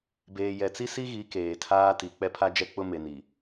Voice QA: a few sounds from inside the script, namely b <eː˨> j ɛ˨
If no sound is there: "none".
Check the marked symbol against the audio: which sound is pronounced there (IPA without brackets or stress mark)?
eː˨